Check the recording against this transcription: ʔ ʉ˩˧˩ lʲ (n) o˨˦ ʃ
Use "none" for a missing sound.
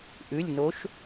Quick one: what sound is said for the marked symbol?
n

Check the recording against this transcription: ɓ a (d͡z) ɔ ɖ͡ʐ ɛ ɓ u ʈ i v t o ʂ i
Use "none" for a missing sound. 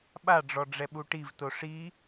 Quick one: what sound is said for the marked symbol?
ɖ͡ʐ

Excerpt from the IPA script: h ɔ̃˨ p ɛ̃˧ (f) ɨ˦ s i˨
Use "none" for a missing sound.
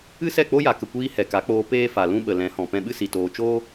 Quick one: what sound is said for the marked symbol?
ɓ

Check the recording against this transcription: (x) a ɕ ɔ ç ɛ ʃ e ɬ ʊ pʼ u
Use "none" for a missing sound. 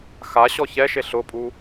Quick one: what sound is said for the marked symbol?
x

